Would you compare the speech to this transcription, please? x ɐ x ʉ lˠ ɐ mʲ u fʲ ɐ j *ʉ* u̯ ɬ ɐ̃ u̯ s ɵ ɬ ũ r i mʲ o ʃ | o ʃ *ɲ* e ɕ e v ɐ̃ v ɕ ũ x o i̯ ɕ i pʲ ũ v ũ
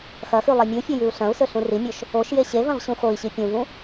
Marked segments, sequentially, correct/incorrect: correct, incorrect: j

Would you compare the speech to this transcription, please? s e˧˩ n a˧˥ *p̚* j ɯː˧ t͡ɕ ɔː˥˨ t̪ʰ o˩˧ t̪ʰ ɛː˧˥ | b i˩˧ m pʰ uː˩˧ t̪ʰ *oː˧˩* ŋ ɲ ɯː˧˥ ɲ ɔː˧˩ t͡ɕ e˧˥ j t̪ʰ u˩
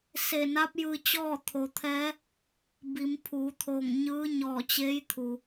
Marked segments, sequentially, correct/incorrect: correct, correct

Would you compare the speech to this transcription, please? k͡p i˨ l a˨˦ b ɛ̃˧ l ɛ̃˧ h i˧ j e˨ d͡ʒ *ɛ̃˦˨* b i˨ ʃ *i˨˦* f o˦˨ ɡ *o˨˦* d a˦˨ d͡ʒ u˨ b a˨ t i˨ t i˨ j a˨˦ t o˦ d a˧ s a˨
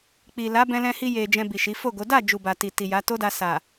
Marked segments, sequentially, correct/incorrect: incorrect: ɛ̃˧, correct, correct

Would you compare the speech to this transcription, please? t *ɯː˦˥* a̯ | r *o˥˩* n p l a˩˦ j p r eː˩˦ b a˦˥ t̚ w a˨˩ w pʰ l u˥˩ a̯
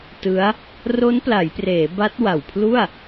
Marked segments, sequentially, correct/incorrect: incorrect: ɯ˦˥, incorrect: o˦˥

